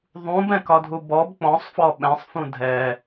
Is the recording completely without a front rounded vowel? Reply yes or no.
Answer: yes